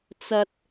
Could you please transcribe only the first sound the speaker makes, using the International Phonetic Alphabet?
t͡s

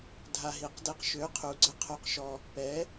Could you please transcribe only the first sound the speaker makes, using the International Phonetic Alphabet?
dʱ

